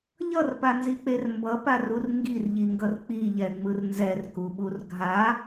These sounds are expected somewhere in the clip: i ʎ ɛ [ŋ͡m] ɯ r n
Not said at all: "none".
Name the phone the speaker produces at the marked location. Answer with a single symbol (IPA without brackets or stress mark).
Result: ŋ͡m